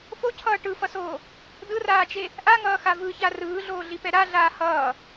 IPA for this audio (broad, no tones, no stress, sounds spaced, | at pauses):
f o cʰ ʌː ʈ ɯ f ʌ s oː | d ɯ r aː t͡ʃ e | ʔ a ŋ ʌː x a v ɯ ç a r ɯː ɮ oː ɮ i p ɛ ɾ a ɮ aː h ʌː